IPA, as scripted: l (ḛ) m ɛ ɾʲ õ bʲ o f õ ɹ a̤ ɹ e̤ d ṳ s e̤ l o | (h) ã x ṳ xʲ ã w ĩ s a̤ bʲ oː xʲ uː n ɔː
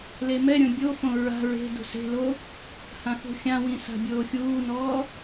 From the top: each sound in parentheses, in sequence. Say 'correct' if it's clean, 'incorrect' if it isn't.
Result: incorrect, correct

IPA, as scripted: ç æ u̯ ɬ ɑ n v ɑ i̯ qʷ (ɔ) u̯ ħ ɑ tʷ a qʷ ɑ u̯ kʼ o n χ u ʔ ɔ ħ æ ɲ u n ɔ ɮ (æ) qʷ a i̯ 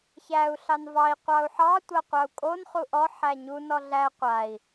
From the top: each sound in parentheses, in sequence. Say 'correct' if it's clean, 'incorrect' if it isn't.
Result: incorrect, correct

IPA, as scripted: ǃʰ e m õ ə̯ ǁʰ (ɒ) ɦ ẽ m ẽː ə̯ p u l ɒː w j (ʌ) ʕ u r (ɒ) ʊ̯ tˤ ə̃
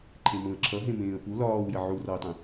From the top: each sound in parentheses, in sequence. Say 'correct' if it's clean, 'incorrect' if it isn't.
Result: incorrect, incorrect, correct

